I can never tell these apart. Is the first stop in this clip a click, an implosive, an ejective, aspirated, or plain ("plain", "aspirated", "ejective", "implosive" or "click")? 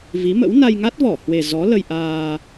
plain